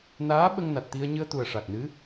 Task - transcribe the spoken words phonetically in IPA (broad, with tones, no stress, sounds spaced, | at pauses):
n aː˧˥ ɓ ə˧ ŋ n a˨˩ t̚ t̪ i˧ ə̯ ɲ ɨ˧ ə̯ t̪ u˨˩ ə̯ ʂ a˨˩ k̚ n ɨ˧˥